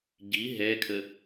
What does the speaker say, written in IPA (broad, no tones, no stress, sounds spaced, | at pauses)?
ɟ i ɦ ɛ kʰ ə